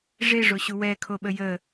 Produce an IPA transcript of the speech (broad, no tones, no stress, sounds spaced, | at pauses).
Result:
ʐ e ʐ o ɕ u w ɛ kʰ o ɓ ə j ə